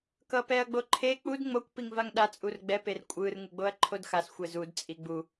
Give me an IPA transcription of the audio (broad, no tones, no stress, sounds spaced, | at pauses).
k ʌ p ɛ ɐ̯ ɡ͡b o ǃʰ e k͡p u d ŋ͡m o kʷ p i ŋ v a ŋ ɗ a t͡sʼ u r ɡ͡b ɛ p e r kʷʼ ɯ r ŋ ɯ ɡ͡b o ɐ̯ ǃʰ o d x a s xʷ ɛ z u d t͡sʼ i ɡ͡b u